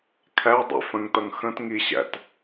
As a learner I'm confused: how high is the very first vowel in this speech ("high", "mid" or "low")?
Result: low